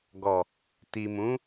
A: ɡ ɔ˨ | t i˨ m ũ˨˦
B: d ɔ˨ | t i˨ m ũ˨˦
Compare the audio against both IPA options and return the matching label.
A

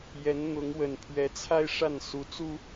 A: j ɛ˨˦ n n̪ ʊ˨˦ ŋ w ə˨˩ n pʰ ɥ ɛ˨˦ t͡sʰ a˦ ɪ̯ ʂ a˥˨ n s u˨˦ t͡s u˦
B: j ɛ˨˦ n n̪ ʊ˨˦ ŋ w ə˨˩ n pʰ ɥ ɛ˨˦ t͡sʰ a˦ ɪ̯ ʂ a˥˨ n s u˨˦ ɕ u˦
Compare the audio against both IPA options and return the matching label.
A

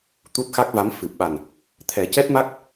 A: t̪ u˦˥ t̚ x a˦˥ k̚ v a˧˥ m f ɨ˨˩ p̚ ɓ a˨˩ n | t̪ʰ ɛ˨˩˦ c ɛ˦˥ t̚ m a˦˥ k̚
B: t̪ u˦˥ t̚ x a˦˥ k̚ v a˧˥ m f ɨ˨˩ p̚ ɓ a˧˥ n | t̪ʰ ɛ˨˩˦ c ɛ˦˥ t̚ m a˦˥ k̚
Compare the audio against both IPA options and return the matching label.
A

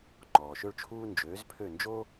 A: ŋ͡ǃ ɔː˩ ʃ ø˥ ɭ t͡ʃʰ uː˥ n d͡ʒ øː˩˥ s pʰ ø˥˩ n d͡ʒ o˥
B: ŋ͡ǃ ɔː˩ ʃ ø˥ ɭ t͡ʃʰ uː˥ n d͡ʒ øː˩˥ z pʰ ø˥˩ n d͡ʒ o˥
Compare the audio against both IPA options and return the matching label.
B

